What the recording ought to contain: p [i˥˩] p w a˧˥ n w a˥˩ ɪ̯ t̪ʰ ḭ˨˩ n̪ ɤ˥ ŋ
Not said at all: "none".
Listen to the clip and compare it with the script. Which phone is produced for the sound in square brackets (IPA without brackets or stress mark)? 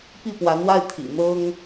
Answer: i˥˩